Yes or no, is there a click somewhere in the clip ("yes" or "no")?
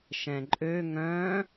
yes